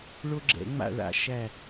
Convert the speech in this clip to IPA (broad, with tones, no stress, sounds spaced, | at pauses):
ɭ o˦ ɡ͡ǁ ɛ̰˨˩˦ ŋ͡m a̰˦˨ ɭ a̰˨˦ ʃ æ˦˨